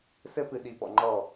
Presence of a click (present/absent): present